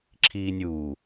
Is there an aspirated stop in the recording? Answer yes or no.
yes